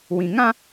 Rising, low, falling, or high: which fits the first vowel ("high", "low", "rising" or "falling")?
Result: low